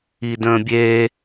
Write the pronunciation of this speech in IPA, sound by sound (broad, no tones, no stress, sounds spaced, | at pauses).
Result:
i d ə̃ː bʲ eː